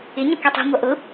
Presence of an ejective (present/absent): absent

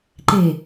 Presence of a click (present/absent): present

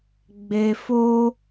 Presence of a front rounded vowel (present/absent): absent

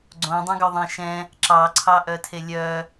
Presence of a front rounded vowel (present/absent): present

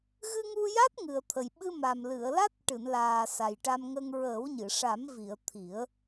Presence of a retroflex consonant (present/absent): present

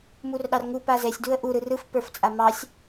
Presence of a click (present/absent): absent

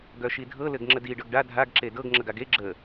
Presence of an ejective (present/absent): absent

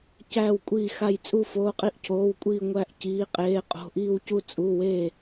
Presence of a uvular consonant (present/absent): present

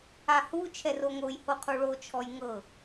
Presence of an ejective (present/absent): absent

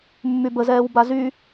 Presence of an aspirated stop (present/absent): absent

